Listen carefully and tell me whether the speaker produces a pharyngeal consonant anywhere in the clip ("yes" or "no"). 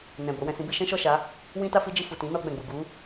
no